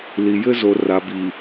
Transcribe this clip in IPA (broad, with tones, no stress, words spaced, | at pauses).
li˨jɘ˦ zo˨ra˨bi˨